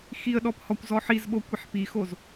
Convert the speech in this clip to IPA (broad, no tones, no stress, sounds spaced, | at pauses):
x i ə̯ ɗ ɔ p h ɔ kʷ z ɔ ħ i z ɓ o kʷ i ħ p i x o z